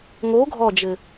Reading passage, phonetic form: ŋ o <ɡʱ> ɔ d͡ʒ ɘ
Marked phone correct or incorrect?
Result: correct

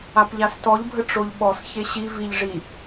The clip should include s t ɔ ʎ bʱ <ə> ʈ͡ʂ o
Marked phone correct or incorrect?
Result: correct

